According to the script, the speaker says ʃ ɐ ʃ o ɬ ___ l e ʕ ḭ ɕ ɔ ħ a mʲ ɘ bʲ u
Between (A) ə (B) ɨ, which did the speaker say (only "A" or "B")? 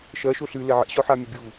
B